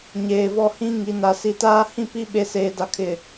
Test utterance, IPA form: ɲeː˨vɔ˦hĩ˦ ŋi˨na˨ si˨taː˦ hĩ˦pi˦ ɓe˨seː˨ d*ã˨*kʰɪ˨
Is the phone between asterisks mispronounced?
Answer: yes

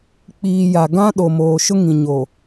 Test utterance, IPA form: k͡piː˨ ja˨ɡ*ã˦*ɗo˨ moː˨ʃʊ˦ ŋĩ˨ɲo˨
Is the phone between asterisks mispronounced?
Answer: no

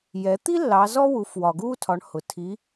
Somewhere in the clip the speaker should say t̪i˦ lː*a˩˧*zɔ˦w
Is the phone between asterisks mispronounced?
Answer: yes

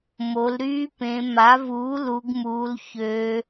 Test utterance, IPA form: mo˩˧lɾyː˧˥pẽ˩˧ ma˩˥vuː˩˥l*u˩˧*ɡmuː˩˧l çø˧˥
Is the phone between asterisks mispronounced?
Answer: no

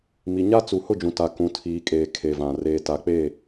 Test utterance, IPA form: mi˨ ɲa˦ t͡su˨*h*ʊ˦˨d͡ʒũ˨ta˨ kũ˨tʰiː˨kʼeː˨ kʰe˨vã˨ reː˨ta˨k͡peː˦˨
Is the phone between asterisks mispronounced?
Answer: no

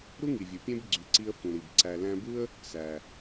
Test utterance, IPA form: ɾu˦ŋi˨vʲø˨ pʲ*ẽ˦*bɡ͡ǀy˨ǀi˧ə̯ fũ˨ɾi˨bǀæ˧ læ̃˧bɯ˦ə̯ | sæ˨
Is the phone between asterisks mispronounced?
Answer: no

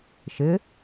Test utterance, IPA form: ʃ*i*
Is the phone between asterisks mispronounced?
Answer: yes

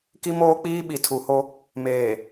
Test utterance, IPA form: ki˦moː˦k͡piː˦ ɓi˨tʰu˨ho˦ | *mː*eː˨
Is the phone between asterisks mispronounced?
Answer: yes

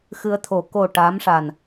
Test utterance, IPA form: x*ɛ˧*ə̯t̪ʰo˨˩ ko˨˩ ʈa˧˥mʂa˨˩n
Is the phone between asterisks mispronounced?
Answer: yes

